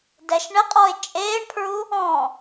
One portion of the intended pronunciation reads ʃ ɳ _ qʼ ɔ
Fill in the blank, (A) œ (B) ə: B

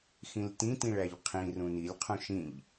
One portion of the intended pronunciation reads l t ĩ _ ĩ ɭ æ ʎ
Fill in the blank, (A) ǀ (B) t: B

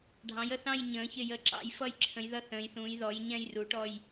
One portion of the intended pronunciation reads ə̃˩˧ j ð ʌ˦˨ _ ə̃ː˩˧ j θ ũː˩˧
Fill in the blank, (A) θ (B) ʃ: A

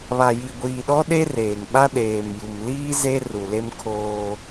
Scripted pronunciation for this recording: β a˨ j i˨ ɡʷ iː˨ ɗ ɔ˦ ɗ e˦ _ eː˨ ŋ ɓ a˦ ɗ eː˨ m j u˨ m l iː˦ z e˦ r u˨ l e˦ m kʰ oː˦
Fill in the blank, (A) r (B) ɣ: A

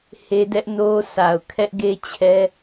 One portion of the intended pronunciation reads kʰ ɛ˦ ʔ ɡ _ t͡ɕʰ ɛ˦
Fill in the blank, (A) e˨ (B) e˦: B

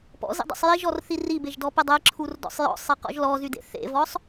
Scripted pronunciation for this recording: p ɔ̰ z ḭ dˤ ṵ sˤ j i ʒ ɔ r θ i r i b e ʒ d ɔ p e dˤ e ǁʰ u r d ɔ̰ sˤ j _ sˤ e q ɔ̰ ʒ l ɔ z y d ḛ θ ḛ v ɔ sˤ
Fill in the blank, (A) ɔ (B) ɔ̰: B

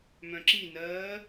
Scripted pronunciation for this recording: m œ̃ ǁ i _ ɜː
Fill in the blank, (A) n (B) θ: A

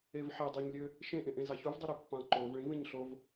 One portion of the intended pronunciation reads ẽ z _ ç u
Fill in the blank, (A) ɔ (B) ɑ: B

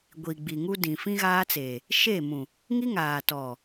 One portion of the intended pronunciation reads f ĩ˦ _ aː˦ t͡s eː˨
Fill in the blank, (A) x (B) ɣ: B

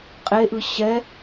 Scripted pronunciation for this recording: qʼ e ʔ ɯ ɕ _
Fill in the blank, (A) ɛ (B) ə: A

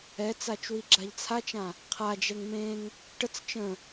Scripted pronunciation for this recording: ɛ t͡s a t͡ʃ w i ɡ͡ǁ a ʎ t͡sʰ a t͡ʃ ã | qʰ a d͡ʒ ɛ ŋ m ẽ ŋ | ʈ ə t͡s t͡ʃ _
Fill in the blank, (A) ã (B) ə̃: B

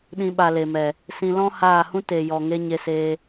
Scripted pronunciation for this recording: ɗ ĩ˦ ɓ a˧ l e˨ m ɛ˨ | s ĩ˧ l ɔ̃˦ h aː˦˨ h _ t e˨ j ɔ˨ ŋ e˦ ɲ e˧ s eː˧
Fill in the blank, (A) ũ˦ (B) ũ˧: A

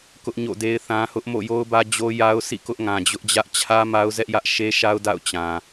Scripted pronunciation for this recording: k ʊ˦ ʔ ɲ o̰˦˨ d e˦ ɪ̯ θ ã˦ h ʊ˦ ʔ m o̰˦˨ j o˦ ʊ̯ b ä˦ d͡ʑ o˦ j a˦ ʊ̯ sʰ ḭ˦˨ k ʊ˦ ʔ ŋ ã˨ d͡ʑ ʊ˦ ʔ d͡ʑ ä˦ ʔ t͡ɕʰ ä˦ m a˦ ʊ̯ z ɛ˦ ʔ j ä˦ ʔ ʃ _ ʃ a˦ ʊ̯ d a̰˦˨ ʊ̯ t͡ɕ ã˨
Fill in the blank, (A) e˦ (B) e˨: A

